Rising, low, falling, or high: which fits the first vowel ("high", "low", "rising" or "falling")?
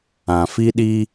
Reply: low